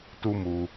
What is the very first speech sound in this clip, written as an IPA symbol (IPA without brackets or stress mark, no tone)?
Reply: t